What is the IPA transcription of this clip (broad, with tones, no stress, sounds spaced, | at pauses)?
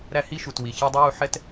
ɾ æ˥ h i˥ ʃ u˨ t w i˨ ç ɑ˥ dˤ ə˥ j u˦ ħ ɛ˦ t